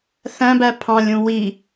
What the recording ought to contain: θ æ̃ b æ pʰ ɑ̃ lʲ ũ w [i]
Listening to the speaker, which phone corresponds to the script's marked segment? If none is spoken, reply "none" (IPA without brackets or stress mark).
i